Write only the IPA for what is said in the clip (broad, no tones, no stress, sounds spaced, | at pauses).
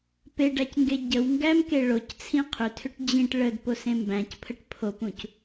p e ɖ æ c ŋ ɡ e ɟ ə w ŋ ɡ æ m k e ɭ o c t͡sʰ ĩ qʰ ʏ tʰ ʏ ʈ d͡ʑ ĩ ʈ ɭ ə d p o s ẽ m b æ̃ c pʰ ə ʈ pʰ o p ũ c